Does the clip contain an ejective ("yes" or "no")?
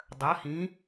no